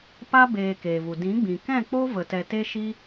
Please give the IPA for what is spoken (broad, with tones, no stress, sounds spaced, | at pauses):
p a˦ b eː˧ k eː˨ v u˨ d ĩ˨˦ ɡ͡b ĩ˨ k ɛ̃˦˨ k͡p o˦ v ə˨ t ɛ˨ t e˦ ʃ i˦